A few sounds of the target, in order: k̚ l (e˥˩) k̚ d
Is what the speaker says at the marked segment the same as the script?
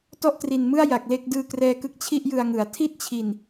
yes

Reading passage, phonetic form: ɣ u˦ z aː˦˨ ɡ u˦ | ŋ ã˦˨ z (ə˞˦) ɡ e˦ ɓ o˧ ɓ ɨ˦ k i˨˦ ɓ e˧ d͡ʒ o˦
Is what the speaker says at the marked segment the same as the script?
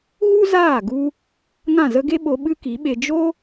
no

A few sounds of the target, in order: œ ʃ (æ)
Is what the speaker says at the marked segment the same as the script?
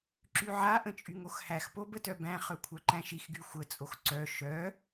no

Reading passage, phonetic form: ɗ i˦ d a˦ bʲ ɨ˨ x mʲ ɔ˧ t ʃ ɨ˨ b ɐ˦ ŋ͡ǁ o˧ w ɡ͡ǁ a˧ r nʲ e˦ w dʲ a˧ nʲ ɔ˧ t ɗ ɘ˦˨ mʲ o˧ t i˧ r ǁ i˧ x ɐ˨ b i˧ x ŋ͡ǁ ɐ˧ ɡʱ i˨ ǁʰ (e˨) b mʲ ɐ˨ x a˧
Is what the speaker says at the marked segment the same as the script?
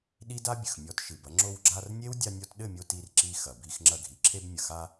no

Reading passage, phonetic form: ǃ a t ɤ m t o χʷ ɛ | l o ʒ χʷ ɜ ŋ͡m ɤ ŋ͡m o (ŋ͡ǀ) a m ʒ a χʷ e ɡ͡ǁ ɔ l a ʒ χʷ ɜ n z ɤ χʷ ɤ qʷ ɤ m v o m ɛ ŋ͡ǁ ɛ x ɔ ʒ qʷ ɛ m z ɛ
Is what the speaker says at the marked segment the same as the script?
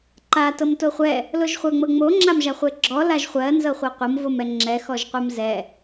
no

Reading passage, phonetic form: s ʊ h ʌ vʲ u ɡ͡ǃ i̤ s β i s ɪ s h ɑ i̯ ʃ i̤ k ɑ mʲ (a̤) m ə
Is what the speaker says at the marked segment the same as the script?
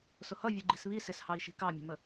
no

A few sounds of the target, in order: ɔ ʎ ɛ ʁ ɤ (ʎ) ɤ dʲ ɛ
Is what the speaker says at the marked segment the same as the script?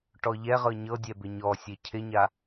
no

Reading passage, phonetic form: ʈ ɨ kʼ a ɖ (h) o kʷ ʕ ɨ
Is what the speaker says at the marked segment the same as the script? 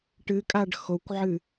no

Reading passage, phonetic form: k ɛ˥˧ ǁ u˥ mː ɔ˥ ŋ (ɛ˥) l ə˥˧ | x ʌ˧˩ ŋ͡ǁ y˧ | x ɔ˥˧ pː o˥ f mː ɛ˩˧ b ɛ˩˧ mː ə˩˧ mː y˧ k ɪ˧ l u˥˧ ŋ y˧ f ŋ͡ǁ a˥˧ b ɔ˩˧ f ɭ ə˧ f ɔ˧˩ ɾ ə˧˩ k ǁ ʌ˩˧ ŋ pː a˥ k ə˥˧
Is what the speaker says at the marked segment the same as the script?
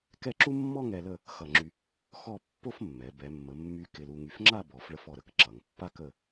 no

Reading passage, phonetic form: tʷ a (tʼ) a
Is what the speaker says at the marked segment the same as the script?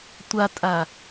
yes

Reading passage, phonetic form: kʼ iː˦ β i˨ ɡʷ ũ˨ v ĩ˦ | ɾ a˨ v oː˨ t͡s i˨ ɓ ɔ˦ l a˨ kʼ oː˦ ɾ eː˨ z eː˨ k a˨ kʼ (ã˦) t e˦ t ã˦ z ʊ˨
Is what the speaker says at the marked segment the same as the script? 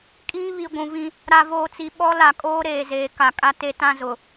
no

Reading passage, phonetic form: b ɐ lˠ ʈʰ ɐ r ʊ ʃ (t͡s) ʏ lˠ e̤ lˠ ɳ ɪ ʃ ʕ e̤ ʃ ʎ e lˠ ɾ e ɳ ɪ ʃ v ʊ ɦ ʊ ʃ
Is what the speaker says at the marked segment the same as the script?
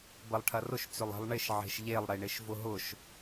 yes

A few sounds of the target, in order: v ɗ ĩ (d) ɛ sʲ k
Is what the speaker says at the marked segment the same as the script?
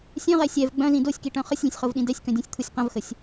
yes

